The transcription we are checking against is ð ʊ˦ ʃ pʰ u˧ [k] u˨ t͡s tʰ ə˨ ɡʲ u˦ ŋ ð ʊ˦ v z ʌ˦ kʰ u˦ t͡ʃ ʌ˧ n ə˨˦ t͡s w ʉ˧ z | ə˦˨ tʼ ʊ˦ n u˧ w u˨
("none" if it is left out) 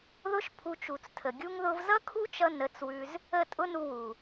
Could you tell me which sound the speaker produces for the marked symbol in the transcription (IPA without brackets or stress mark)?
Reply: t͡ʃ